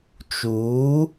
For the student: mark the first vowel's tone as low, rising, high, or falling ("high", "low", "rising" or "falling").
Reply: rising